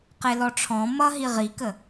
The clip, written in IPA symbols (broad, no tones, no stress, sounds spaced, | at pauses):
q e l ɔ ʈ͡ʂʰ ɔ̃ m ʌ ɦ i ʁ i k ə